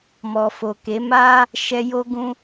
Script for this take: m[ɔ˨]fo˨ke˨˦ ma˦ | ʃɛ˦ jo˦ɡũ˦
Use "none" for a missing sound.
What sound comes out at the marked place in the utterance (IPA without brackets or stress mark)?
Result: ɔ˨